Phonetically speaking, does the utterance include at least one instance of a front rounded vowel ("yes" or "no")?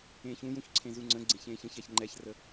no